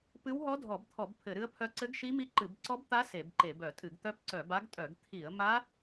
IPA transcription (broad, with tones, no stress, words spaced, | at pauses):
pɨ˦˥wɦɔ˦˥dʱɔ˧˩˧bt̪ʰɔ˧˩˧b pʰɘ˧˩˧ɾɨ˦˥ə̯pʰœ˦˥ ǀɘ˦˥ɡʃi˦˥mi˦˥ ǃɨ˧˩˧bǀɔ˦˥bt̪a˦˥ se˧˩˧bǃe˧˩˧b œ˧˩˧tʼɨ˧˩˧ɡ t̪œ˦˥pǀœ˧˩˧ba˦˥ɡtʼœ˧˩˧ɡ t̪ʰi˧˩˧ə̯ma˦˥